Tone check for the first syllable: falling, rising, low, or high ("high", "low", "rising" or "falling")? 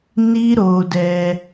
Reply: high